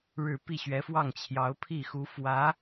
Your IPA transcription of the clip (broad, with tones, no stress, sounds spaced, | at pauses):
ɻ ɻ̩˥˧ p i˥˩ ɕ ɥ ɛ˧˥ f w ɑ˥˩ ŋ t͡ɕʰ j ɑ˧˥ ʊ̯ pʰ i˥˩ x u˧˥ f w ä˧˥